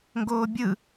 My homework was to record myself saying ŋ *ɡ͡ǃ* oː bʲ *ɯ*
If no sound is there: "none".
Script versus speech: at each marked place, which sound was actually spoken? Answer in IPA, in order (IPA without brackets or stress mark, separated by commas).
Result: ɡ, ɯ